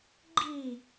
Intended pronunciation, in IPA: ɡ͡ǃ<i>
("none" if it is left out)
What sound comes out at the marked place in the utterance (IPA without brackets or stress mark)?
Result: i